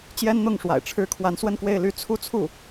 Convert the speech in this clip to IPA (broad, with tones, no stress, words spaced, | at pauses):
t͡ɕjɛ˥nn̪ʊ˥˩ŋʂwa̰˨˩ɪ̯ ʈ͡ʂʰɻ̩˥ kʰwa˧˥nswə˥˧nkwe˥˩ɪ̯ly˥ t͡sʰu˥˧t͡sʰu˥˩